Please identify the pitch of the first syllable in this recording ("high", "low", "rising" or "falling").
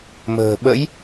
low